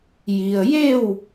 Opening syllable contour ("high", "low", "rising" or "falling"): low